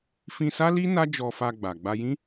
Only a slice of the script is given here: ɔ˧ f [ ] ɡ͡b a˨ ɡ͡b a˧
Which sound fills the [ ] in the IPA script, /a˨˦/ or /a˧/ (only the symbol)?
a˧